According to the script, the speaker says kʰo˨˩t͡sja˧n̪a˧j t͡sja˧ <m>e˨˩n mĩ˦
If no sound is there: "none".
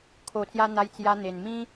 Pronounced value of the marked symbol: n̪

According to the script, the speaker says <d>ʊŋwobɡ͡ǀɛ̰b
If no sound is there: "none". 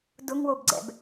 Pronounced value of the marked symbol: d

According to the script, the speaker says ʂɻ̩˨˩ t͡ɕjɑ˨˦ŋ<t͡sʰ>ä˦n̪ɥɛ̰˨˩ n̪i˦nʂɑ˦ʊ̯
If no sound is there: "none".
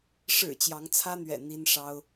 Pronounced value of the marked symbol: t͡sʰ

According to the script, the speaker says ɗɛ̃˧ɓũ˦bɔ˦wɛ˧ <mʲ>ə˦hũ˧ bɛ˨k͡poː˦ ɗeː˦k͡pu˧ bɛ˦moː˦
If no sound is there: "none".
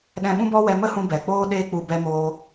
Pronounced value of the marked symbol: m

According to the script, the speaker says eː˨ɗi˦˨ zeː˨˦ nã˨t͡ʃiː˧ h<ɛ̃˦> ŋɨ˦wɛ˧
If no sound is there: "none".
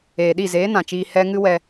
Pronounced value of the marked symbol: ɛ˦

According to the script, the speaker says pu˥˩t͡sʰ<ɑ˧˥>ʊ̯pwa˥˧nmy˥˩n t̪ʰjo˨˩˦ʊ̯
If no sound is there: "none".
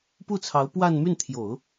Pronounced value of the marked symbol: ɑ˧˥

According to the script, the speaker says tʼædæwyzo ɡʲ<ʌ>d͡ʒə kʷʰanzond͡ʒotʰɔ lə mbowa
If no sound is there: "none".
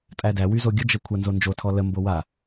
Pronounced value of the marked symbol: ə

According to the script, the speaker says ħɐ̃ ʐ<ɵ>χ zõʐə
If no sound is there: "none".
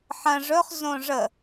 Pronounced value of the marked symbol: ɵ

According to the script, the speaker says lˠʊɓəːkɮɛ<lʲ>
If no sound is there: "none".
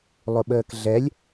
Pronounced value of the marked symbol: lʲ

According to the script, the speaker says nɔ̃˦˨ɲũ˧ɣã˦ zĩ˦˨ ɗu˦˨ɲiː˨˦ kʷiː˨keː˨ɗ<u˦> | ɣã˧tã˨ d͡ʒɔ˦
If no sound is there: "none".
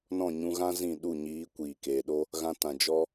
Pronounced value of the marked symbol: o˦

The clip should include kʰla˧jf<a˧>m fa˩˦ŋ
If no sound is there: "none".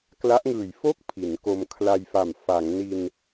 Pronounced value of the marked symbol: a˨˩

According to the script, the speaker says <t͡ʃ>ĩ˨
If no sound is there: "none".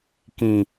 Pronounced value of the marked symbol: k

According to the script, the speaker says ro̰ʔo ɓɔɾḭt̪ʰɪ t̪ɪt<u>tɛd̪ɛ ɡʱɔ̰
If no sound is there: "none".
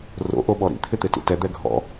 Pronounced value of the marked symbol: ṵ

